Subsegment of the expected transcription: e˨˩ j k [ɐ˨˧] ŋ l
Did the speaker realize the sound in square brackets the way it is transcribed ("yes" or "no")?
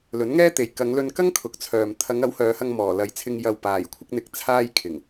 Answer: yes